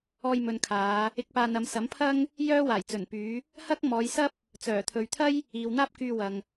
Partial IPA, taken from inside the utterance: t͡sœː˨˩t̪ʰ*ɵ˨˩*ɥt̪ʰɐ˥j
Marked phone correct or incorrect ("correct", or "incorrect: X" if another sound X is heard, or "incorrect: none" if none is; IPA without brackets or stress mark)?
incorrect: ɵ˨